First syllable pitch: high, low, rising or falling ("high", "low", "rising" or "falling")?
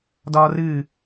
high